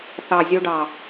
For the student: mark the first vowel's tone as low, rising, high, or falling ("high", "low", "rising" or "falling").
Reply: low